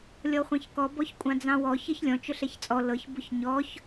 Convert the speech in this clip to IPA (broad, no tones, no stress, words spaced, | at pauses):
lʲɔχʷɑ̃çkɔ bɔçkʷʼɑ̃d͡zɑ̃wɔ çɤçlʲɔ̃ t͡ʃʊɬɛçt͡sʼɔ lɤç bʊçɲɔç